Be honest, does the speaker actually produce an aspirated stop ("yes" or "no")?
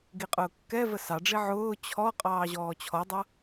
yes